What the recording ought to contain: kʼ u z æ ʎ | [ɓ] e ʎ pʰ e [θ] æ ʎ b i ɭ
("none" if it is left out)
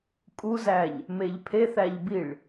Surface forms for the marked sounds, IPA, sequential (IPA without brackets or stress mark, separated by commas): m, θ